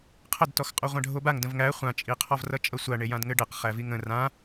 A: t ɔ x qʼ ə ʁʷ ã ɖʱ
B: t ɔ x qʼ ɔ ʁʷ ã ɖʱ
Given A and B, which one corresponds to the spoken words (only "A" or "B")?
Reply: B